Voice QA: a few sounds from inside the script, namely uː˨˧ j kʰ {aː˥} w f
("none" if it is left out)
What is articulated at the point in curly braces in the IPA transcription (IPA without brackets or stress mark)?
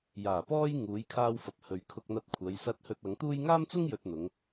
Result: aː˧